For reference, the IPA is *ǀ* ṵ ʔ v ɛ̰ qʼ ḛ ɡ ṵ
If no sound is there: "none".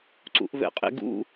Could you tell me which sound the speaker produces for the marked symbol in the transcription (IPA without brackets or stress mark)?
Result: ǀ